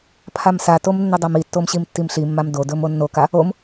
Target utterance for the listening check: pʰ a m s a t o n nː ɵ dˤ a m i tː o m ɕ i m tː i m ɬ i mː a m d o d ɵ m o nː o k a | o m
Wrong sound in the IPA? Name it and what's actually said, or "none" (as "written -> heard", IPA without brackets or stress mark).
n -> m